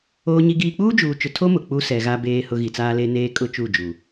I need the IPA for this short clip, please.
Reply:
oː˦ɲi˦ɡiː˦ k͡puː˦d͡ʒuː˨t͡ʃʊ˨tʰo˦ mʊ˨ k͡pu˦sɛ˨ɣa˦ beː˦ hʊ˦ ɣi˨t͡saː˦le˦ neː˦kʼʊ˦ t͡ʃu˦˨d͡ʒu˨

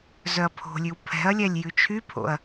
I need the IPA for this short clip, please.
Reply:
zœɐ̯pʰo̤lʲʉw pʰɛ̤ɐ̯lʲælʲ jʉt͡ʃʰypʰo̰ɐ̯

